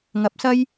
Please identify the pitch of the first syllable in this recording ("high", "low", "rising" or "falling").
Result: rising